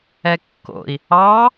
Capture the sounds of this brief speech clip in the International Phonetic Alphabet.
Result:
ɛkːo̰i̯ | ɑ

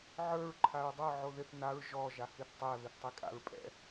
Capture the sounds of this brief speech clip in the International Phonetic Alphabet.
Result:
ʕə˞ɹ ǃʰaɹdˤə˞ ʕoðɪθ naɹ ʒɔ ʒahiθtˤɛ βɪθtˤikʼa̰ɹpʼɛ̰

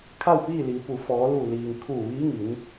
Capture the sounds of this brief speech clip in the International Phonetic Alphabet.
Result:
kʰa˥˨wpiː˥˨liː˩˧pu˩ fɔː˩˧lu˧˩liː˩ŋ kʰuː˧˩ʋiː˧˥ŋi˩˧n

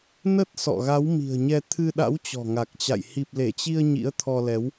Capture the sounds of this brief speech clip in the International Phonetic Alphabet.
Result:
nə˦˥t̚ sɔ̰˧˨ɣa˨˦wmi̤˨˩ə̯ɲɛ˧ t̪ʰɨ˧ɗa̰˧˥w t͡ɕɔ̤˨˩ŋa˨˩k̚t͡ɕa̰˧˨j hi˨˩p̚le˧˩t͡ɕi˧ə̯ ɲḭ˧˥ə̯t̪ʰɔ˧lɛ˨˦w

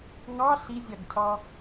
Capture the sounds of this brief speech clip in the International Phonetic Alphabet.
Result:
ŋɑ ɬizʲɑɡcʰɑ

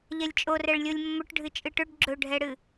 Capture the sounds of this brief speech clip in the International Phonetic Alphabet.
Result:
ʎɛlʲt͡ʃʼo rɛɭlʲolʲmːɵʈ ɖʱɨt͡ʃʼɨʈɵɖ ɡ͡ǁɵɖʱɛɽɨ

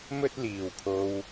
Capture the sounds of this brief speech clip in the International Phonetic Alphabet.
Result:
mɵ˥t̚liː˨wpʰo˧w

